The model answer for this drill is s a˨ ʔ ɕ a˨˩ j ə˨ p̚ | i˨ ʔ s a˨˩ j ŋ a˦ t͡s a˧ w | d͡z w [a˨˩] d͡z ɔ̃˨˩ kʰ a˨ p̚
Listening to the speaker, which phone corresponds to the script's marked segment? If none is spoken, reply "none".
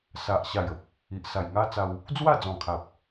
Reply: a˥˧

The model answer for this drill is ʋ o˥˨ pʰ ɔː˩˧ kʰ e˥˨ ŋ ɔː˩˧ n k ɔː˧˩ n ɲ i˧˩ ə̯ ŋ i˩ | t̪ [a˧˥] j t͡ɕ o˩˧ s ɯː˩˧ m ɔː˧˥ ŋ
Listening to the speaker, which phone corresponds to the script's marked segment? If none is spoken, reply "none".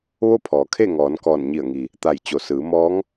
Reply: a˧˩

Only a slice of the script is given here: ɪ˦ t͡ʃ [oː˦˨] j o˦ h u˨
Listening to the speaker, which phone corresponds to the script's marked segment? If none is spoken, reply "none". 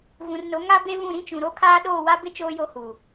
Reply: oː˦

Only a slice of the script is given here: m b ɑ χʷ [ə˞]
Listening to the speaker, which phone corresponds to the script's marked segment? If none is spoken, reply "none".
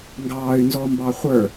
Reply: ə˞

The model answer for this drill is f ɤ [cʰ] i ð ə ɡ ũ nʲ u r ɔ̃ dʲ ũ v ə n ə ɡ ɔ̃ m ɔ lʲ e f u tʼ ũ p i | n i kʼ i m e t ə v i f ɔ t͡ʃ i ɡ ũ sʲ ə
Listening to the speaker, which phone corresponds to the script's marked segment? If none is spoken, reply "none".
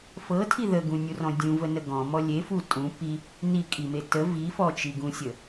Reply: tʰ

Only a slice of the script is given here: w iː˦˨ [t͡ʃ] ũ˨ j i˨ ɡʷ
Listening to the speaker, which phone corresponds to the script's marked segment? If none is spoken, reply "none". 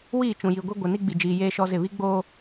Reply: t͡ʃ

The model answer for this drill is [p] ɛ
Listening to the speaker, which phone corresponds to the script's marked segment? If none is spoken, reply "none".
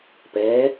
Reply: p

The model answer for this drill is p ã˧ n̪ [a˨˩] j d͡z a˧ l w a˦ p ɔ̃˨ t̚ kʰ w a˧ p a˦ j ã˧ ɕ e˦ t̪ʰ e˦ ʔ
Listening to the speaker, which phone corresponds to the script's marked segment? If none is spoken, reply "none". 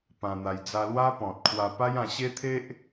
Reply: a˧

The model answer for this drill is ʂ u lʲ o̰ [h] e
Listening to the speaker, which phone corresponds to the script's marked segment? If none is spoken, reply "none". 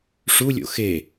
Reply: x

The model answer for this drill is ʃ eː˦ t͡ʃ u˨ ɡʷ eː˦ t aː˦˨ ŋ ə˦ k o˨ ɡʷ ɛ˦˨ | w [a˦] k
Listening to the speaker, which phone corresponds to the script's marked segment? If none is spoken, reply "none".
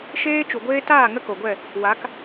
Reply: a˨˦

